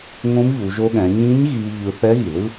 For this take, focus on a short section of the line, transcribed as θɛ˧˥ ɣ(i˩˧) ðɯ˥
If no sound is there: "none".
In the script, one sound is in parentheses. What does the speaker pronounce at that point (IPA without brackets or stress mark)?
i˩